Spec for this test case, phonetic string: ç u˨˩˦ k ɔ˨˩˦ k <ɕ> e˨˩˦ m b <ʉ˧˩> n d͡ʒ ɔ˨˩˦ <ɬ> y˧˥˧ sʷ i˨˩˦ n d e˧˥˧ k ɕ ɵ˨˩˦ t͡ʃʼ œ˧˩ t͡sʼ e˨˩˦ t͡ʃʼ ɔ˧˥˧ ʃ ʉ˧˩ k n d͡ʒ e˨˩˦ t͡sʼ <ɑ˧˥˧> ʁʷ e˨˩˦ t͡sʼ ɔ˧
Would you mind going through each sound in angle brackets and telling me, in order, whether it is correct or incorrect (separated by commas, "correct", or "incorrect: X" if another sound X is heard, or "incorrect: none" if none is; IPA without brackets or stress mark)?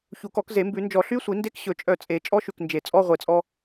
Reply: incorrect: z, incorrect: ʉ˨˩˦, correct, incorrect: ɔ˧˥˧